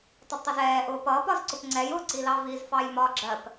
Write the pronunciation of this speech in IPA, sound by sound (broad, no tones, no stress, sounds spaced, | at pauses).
tˤ ʌ d tˤ ɛ z ɛː ʔ ʊː p ʌː p ɒ z ǀ ʊ p ŋ͡ǀ ɛ j ʊ ǀ i l ɑ v i z f ɑ j m ɒ ɡ͡ǁ ɜ p